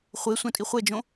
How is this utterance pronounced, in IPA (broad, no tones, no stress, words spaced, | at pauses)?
χʷe sʷãtʼiχʷɛd͡ʒõ